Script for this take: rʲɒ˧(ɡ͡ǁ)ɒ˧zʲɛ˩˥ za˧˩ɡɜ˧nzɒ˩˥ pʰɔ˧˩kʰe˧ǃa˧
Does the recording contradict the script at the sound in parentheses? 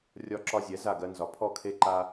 yes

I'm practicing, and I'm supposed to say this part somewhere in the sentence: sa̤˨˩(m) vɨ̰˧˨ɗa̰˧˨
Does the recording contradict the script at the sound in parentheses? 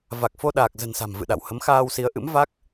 no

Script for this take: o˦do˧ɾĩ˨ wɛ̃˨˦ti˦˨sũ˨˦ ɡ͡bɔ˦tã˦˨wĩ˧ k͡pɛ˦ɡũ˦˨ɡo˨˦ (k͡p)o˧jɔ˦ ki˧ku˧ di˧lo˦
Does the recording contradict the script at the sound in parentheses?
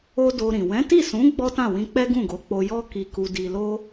no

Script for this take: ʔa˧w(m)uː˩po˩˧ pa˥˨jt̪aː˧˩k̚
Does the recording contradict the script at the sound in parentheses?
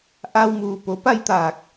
no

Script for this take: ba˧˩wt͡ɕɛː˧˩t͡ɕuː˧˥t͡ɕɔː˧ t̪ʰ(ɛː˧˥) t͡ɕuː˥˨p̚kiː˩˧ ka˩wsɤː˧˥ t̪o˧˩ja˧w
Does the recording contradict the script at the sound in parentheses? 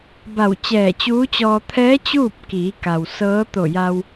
no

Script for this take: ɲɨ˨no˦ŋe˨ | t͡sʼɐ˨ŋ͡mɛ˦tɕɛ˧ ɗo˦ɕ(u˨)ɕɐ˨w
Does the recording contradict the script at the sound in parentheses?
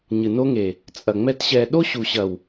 no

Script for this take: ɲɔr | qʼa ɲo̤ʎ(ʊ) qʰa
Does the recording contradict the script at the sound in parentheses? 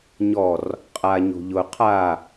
no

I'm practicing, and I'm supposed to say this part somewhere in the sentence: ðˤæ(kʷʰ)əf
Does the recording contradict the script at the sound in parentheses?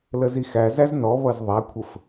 no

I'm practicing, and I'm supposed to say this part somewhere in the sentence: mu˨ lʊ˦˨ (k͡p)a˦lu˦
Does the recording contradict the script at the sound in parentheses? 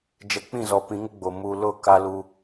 yes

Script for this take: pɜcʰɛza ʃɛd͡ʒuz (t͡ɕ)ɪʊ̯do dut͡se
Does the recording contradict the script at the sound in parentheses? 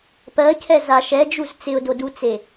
yes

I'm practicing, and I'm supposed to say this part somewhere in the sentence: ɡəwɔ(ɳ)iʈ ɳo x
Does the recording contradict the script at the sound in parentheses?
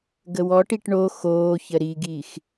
yes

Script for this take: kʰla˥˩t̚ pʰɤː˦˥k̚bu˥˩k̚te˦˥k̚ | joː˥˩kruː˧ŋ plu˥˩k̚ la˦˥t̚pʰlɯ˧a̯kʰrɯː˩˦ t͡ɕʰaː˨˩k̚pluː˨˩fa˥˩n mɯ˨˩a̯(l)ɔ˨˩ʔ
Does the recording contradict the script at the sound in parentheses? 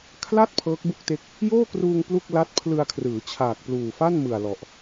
no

